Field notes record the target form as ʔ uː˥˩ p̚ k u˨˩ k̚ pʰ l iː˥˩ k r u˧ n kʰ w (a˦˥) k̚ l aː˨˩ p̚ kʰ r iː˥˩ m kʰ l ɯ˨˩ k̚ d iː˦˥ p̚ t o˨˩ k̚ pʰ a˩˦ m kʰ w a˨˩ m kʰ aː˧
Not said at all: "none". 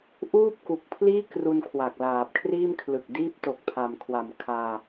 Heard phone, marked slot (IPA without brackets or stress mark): a˨˩